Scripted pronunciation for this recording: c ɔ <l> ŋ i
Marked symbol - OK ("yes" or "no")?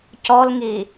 yes